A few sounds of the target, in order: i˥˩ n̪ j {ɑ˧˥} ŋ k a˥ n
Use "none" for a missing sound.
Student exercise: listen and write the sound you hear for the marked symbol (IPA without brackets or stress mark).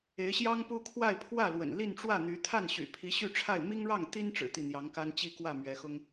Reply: ɑ˧˥